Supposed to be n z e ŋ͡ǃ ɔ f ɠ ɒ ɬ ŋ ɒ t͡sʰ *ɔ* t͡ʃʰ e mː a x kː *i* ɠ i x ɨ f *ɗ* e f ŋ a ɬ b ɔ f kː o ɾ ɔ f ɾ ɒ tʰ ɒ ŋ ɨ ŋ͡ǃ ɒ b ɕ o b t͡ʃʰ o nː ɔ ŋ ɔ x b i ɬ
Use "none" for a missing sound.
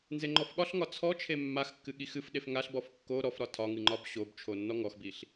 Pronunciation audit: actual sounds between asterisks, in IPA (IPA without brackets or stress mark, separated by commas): ɔ, ɨ, ɗ